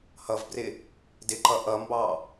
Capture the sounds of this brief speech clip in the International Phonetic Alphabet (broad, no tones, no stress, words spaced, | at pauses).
hʌvbrɪ | dɪǃʌ ʔʌmbɑ